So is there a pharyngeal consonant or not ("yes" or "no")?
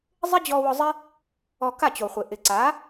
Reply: no